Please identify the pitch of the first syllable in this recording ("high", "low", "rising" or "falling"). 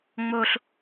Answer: high